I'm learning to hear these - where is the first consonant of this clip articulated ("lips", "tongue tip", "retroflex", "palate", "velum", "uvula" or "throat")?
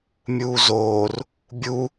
lips